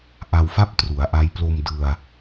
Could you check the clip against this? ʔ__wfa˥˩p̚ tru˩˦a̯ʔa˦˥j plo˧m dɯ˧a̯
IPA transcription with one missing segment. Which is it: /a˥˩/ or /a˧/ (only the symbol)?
a˧